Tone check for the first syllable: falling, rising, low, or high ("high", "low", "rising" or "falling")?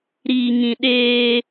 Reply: low